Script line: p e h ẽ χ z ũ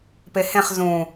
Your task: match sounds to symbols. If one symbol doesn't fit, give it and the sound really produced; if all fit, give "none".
none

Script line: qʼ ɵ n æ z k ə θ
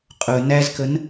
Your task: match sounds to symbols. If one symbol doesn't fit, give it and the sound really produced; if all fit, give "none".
θ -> n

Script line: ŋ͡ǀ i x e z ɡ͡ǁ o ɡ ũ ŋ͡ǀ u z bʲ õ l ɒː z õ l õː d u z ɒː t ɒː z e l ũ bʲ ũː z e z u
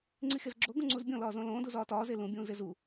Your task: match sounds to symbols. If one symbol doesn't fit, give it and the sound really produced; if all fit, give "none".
none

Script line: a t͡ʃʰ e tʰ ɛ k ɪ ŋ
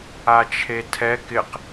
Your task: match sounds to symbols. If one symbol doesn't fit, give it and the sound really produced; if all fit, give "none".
ŋ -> q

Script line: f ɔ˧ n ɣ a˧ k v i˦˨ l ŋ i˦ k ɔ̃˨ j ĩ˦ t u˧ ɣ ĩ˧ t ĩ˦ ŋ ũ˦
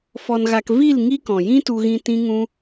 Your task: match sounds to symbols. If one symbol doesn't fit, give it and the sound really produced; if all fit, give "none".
none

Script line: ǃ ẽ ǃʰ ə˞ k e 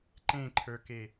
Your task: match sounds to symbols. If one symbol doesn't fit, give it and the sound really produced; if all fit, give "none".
none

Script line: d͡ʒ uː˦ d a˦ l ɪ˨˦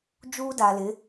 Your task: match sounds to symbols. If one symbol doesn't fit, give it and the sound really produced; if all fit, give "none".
a˦ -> a˨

